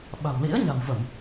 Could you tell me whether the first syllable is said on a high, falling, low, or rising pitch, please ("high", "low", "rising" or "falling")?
low